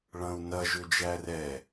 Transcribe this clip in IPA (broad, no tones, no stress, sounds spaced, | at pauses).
ɭ ɐ̃ u̯ n ɐ ʒ ʏ d͡ʒ æ r ɛ